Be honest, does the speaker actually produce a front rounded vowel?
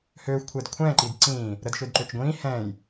yes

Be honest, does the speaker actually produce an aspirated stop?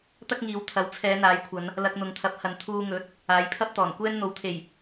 yes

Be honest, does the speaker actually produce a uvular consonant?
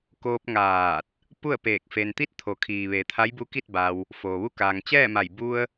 no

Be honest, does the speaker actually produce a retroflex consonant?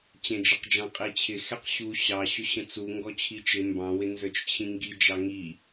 no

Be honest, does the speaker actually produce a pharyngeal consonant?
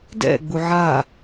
yes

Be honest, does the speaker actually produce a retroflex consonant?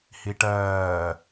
yes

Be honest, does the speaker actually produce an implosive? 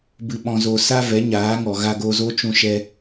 yes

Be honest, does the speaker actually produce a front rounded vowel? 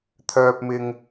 yes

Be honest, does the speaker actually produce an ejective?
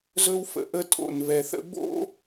yes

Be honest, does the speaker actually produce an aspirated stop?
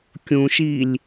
no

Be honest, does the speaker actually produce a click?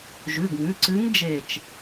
yes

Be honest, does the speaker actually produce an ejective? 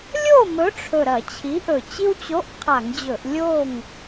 no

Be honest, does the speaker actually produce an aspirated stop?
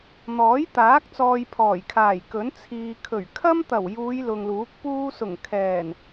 yes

